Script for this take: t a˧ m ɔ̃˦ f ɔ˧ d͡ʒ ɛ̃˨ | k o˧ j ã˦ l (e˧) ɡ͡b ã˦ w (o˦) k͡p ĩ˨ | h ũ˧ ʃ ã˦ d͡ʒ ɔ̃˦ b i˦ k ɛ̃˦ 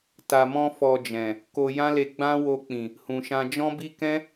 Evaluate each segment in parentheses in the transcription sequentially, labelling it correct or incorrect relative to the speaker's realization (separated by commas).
correct, incorrect